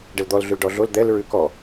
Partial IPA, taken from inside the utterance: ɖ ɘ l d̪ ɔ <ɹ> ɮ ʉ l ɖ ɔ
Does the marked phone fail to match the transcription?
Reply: yes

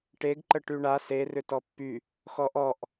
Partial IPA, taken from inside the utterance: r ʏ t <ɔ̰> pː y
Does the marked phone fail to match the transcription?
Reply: yes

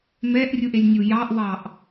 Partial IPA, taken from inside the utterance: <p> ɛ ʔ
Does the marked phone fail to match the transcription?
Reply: yes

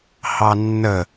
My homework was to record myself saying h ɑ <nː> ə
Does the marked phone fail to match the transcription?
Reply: no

